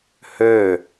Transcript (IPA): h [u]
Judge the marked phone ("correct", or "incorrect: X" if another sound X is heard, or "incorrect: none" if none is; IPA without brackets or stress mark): incorrect: ø